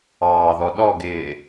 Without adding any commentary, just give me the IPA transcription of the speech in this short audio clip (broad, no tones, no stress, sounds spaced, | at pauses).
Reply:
ɑː ð ɔ ɗ ɔ ɡ ɪː